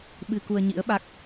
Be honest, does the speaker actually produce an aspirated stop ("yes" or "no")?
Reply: no